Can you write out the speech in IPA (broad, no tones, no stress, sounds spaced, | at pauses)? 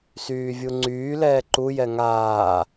s yː vʲ u ŋ͡ǀ yː l ɛː ǃ u j ɛ ŋ aː